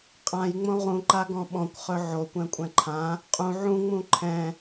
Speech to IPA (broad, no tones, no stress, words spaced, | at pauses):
qʼãjŋ͡mõ ʁũǃaɡɔ̃ ɓɔ̃kʷχɵ ʕokʷɛ̃kʷʼɛ̃ ǃʰã | qʼũ ʕũŋ͡mũ ǃʰɛ̃